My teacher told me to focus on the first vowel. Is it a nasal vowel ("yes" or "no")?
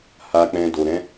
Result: no